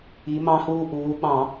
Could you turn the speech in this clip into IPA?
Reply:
i˩˧ m ɑ̃˧ h uː˧ ʔ uː˩˧ ɓ ɑ̃˧˩˧

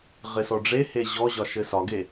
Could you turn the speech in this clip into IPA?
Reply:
ʁ ɪ s ɔ ɖ͡ʐ e h e ʑ ɔ ʑ ɒ ʃ ɘ s ɒ ɡ e

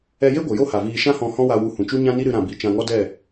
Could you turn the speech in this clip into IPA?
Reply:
ɛ˧ j e˦ ɡʷ ə˨ j o˦ h a˨ v iː˧ ʃ ã˦ h ɔ̃˧ h ɔ̃˦ w a˧ w u˧ h ũ˨ t͡ʃ u˦ ɲ ã˦ n i˦ ɾ ɨ˧ ɾ ã˨ b i˨ t͡ʃ ã˧ ŋ ɔ˦ d ɛ˦˨

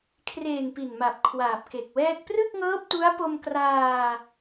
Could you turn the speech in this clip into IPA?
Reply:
kʰ r eː˨˩ ŋ p i˨˩ n m a˨˩ p̚ kʰ w aː˨˩ p̚ k e˨˩ k̚ w ɛː˥˩ k̚ p r ɯ˥˩ k̚ ŋ ɤː˦˥ p̚ t u˦˥ a̯ p o˧ m k r aː˧

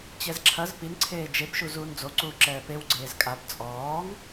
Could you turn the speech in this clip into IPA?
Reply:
t͡ɕ ɛ z ǁʰ ɐ z p i n ǀʰ eː d͡ʒ e b ʃ u z uː n d͡z o ǀ uː ǁ ɛː p e w ɡ͡ǀ eː z kʼ a b t͡sʼ ɔː ŋ

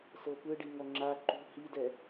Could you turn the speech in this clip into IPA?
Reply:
s ɤ p ɯ ɖ i ŋ ɔ ŋ͡ǁ a ǃ ṳ h i d ɛ

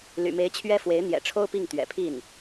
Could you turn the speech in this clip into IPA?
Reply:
l y̰˨˩ m e˧˥ ɪ̯ t͡ɕʰ ɥ ɛ˥ f w e˧˥ ɪ̯ n̪ j ɛ̰˨˩ ʈ͡ʂʰ o˥ ʊ̯ p i˥˩ ŋ t̪ ɥ ɛ̰˨˩ pʰ i˥˩ n

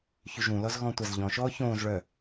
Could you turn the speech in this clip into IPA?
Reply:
ç y ʒ ũ l ɔ z ɣ ɔ̃ tʷ a z ʎ ɔ̃ ʃ ɔː ç õː z ɭ œ

